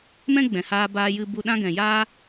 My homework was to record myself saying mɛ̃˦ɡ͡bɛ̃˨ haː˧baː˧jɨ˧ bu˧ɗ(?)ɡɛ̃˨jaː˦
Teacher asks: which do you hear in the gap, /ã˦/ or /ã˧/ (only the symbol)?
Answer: ã˦